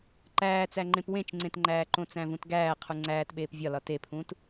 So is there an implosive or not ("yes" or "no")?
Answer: yes